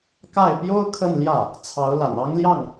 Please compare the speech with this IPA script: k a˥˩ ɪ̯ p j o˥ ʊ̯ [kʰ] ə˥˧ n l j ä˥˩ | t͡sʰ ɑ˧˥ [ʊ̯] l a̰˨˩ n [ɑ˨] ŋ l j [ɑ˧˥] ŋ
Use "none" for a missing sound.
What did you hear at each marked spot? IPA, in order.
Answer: kʰ, ʊ̯, ɑ˥, ɑ˥˩

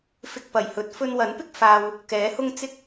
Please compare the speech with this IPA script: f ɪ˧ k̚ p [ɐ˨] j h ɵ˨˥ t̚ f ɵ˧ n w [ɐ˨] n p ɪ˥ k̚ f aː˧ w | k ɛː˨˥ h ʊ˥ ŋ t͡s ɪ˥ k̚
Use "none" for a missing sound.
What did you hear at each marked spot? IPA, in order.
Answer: ɐ˨˩, ɐ˨˥

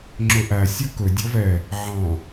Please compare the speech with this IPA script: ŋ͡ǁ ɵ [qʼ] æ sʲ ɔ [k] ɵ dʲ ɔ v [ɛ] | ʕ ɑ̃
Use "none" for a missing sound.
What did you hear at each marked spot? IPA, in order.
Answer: ʔ, k, ɛ

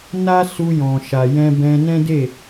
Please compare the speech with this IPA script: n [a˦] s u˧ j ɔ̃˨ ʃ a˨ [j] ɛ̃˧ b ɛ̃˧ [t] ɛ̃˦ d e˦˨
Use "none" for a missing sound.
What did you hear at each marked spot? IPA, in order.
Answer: a˦, j, n

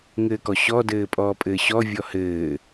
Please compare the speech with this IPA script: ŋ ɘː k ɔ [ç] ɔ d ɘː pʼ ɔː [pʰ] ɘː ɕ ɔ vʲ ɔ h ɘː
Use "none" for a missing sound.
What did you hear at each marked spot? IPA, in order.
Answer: ɕ, pʼ

